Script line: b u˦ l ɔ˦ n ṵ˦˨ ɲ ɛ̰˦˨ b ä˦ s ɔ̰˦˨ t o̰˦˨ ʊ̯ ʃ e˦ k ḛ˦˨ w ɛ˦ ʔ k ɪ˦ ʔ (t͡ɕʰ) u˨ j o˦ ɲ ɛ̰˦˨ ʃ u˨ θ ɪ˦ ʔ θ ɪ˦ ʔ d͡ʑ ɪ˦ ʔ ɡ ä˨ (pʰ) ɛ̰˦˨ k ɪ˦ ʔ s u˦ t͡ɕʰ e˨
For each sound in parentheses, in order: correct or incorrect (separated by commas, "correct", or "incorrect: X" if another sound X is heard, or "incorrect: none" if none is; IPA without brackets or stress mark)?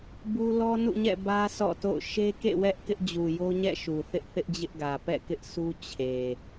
incorrect: d͡ʑ, incorrect: p